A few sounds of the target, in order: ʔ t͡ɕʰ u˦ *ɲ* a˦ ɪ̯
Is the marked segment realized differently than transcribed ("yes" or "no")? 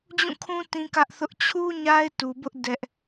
no